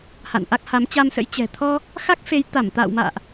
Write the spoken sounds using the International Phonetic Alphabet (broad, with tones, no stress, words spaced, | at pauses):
ha̰˧˨nʔa˦˥k̚ ha˨˦mt͡ɕa˧msə̰˧˥j t͡ɕɛ̤˨˩t̪ʰɔ˧ | xa˦˥k̚fe˨˦jt̪a˧˩m t̪a̰ː˧˨wma̰ː˧˨ʔ